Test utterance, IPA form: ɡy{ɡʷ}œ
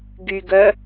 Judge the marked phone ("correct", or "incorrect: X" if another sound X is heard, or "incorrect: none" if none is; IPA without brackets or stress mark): incorrect: ɡ